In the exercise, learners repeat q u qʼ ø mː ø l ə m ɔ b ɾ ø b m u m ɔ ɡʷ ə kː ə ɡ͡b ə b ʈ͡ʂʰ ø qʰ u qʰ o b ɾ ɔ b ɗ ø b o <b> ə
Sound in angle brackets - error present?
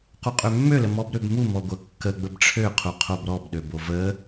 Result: yes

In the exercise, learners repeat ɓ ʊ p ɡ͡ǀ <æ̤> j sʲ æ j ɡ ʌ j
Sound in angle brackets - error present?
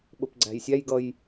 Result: no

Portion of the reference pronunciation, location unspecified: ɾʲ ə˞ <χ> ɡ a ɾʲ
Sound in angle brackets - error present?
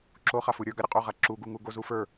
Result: yes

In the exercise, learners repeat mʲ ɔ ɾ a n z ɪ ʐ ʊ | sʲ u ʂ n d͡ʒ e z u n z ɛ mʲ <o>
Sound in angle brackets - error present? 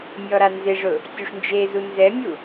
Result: yes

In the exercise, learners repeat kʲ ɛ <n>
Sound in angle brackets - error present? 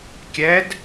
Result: yes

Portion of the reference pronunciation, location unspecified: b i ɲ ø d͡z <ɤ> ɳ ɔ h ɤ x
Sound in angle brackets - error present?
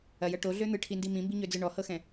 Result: yes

